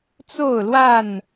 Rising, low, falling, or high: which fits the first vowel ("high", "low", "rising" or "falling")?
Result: falling